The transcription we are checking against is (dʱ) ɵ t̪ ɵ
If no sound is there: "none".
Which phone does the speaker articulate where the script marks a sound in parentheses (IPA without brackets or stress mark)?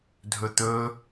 dʱ